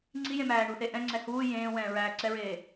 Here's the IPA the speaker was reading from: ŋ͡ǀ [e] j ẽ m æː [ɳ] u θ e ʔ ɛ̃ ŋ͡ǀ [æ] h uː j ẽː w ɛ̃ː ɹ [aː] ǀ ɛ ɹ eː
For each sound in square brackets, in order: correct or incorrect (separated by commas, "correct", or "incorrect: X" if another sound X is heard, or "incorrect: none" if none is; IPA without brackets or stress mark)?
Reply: incorrect: i, correct, incorrect: ɛ, incorrect: æː